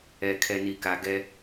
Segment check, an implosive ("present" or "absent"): absent